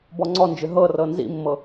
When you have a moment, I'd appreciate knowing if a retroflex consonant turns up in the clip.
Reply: no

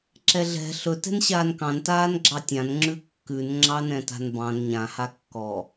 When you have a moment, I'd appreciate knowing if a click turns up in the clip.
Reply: yes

